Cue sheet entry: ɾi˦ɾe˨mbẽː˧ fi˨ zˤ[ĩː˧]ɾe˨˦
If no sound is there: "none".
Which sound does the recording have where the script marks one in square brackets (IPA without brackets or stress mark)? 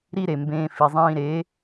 ĩː˧